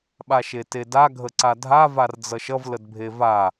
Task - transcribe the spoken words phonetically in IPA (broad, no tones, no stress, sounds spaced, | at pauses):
ɓ a ʃ e t e d a ɡʱ ə ǀ a dʱ a v a r d͡z ʌ ʃ ʌ v l ə d bʱ e v a